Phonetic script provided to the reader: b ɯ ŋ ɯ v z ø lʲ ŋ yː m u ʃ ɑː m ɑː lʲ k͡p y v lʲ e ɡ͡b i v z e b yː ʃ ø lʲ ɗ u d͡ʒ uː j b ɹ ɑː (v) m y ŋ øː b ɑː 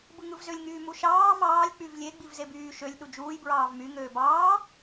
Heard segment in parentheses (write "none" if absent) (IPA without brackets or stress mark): v